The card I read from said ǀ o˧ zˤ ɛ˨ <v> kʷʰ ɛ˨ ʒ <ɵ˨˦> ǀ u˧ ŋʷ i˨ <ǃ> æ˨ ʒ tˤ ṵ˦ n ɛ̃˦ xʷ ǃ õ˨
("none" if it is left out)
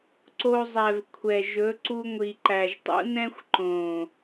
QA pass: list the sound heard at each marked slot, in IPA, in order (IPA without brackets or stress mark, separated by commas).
v, ɵ˨˦, ǃ